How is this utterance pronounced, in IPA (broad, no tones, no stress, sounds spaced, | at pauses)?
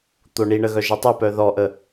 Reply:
t̪ o ɳ i ɳ ə ɣ œ ʒ ɪ tˤ ɛ p œ ð ɔ ʔ ə